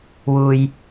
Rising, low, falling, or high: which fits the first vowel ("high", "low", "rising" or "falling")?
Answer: low